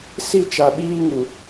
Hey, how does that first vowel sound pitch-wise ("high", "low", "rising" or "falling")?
falling